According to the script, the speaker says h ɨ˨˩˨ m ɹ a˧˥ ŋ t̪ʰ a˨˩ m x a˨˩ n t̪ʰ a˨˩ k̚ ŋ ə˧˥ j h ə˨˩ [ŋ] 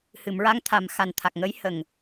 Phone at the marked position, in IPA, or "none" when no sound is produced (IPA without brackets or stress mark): ŋ